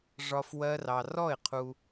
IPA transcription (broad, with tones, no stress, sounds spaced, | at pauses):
ʐ ɒ˧ f w ɜ˦ r ɑ˧ r ɔ˦˨ ɪ̯ qʰ u˧